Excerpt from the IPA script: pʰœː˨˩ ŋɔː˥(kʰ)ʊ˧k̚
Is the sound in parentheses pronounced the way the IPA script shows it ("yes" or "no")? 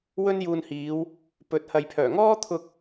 no